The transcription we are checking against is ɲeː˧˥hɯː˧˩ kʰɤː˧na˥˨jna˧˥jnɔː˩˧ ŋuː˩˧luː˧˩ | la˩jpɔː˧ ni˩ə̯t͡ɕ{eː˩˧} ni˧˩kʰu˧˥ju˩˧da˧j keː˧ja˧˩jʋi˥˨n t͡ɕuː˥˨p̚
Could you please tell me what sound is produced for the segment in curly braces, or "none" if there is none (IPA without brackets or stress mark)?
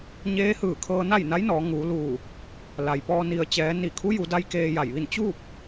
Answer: ɛː˩˧